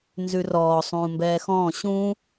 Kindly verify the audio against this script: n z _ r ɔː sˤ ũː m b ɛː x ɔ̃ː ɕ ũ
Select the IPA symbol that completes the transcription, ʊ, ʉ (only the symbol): ʉ